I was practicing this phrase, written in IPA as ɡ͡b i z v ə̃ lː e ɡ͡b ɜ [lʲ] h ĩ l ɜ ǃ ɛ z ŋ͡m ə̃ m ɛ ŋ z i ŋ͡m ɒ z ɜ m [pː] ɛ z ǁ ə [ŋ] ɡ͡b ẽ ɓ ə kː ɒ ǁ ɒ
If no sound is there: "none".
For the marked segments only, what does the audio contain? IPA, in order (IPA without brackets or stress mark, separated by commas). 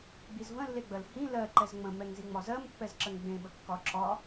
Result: l, pː, ŋ